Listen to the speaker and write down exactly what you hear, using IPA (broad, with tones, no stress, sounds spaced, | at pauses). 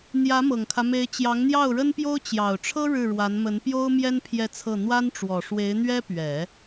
n̪ j ä˧˥ m ɤ˨˩ ŋ kʰ ä˦ m e˧˥ ɪ̯ t͡ɕ j ɑ˧˥ ŋ n̪ j ɑ˥˩ ʊ̯ ɻ ə˥ n p j o˥ ʊ̯ t͡ɕ j ɑ˨˩ ʊ̯ ʈ͡ʂʰ ɤ˥ ɻ ɻ̩˥˩ ɻ w a˧˥ n m ə˧˥ n p j o˥ ʊ̯ m j ɛ˥ n pʰ j ɛ˥˧ t͡sʰ ɤ˥˩ n̪ w a˥ n ʈ͡ʂ w ɔ˨˩ ʂ w e˧˥ ɪ̯ n̪ ɥ ɛ˥ p ɥ ɛ˨˩˦